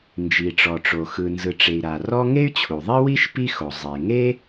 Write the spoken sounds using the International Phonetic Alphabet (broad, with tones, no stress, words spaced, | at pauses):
nd͡ʒi˩ʈ͡ʂɔ˩ʈ͡ʂo˩ xɯ˩nzɯ˩ʈ͡ʂe˩i̯ ɾa˩rɔ˥ ŋe˥y̯t͡ɕʰu˩ðˤi˥wi˥ʃ pi˥xo˩ zˤe˩ ŋe˥